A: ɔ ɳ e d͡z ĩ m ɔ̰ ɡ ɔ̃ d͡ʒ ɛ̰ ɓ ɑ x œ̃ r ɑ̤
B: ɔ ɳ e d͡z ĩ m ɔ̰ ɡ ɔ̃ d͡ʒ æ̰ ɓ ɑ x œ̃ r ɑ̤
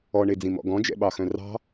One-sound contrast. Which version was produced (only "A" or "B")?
A